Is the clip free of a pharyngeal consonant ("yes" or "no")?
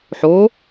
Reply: no